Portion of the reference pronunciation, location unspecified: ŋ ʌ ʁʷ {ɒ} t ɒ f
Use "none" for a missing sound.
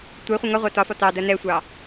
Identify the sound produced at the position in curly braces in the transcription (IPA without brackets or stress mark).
ɑ